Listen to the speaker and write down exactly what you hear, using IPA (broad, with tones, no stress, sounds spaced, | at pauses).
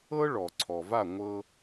ɤ˥ ɭ ɔ˩ ǀʰ ɔ˩ v a˥˩ ŋʷ ɤ˧